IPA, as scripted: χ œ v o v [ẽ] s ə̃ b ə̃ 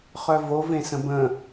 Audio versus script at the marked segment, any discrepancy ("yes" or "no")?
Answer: no